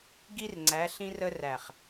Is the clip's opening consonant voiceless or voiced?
voiced